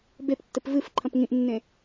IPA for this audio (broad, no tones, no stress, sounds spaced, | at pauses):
b e p tː ɘ p v ɨ f ǃʰ ɐ̃ p ŋ ĩ ʔ nː ẽ